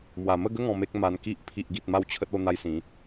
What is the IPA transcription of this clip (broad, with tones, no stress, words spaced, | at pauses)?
mwa˨˩mə˥˧ɡə˦ ŋɔ̃˧me˦k̚ ma˧nki˦ʔ pʰi˨ʔɡi˨t̚ ma˥˧wt͡ɕʰə˦t̚o˥˧ n̪a˦jsĩ˨˦